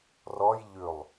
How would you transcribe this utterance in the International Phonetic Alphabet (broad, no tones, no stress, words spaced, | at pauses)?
rɔj ʎʉlˠ